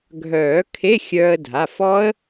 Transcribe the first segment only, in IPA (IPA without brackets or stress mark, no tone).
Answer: ɡʱ